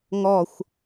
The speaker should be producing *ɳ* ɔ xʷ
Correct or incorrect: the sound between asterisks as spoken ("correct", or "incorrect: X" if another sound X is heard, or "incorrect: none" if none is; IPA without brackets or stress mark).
incorrect: ŋ